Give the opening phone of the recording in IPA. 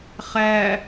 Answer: χ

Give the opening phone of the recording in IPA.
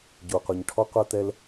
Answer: ɟ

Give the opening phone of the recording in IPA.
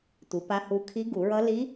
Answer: tʷ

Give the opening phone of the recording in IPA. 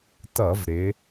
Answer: t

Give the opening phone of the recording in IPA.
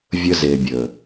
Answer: vʲ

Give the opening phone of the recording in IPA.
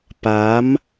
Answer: p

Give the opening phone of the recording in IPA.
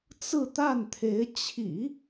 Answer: t͡s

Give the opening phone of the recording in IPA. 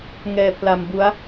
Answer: ŋ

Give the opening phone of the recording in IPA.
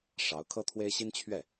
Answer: ʂ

